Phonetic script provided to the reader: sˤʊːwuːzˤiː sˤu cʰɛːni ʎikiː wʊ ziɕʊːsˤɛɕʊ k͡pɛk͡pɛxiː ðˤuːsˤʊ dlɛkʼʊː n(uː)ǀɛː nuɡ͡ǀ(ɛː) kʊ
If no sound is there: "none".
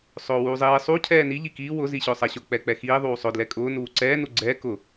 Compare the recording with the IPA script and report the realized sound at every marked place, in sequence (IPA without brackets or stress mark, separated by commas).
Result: uː, ɛː